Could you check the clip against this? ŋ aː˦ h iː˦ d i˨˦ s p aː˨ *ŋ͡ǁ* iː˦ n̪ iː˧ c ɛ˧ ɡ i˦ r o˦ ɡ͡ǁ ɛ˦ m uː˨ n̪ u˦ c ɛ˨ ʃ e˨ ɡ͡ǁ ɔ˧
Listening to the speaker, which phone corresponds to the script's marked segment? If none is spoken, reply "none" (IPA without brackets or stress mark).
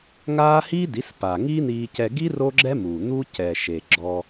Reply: ŋ